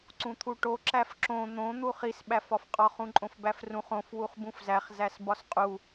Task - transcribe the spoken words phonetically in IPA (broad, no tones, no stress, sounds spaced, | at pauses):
ǀ ũ t̪ʰ u ʈ o ǁ æ f ǁ õ n̪ õ n̪ u χ i s ɓ æ f ɒ f qʼ ɒ χ ũ ǃʼ õ f b æ f r ũ χ õ f w u χ b ũ f z æ χ z æ s b ɒ s qʼ u